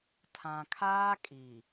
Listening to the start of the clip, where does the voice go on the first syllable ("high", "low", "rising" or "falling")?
low